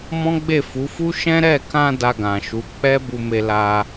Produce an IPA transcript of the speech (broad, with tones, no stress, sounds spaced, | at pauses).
m ɔ̃˦ ɡ͡b e˦˨ f u˨˦ f u˦ ʃ ɛ̃˦ ɾ ɛ˦˨ k ã˧ d a˧ ɡ ã˨ ʃ u˨˦ k͡p ɛ˦ b u˧ m e˧ l a˧